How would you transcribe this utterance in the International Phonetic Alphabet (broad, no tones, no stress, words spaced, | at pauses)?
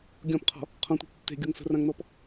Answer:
ɡʲɔ̃pqʰɔ̤ | qʰɔ̃tʷe̤p tːe̤ɡʲoŋ sə̤rãŋnɔp